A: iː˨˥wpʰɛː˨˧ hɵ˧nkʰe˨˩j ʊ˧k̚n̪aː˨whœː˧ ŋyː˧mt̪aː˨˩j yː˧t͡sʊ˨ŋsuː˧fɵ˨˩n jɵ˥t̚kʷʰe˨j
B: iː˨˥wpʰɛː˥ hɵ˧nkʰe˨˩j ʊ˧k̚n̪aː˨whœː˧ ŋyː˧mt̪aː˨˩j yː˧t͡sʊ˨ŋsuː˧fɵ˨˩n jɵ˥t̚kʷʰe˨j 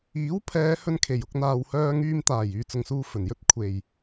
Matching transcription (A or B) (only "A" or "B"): A